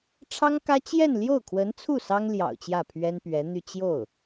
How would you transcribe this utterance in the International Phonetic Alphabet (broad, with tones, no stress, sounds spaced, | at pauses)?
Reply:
ʈ͡ʂʰ ɑ˥ ŋ k ä˥ t͡ɕ j ɛ˥˧ n l j o˥˩ ʊ̯ kʰ w ə˧˥ n t͡sʰ u˥˩ s ɑ˥ ŋ l j ɑ̰˨˩ ʊ̯ t͡ɕ j ä˥˩ pʰ ɥ ɛ˥ n p ɥ ɛ˧˥ n̪ y˥˧ t͡ɕ j o˥˩ ʊ̯